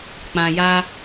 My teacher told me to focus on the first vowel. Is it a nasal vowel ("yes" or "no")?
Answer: yes